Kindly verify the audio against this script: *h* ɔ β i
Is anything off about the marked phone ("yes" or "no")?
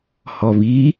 no